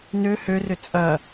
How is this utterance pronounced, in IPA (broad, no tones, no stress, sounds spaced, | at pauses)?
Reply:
n ø h ø r ʏ t͡sʼ ɐ